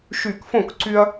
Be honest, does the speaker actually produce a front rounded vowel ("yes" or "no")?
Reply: yes